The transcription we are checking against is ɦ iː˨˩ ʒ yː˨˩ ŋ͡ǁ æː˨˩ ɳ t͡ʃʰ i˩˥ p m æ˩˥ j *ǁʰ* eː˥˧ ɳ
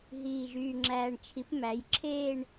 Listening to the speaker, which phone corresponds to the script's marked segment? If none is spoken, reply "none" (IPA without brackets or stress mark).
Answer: ǁʰ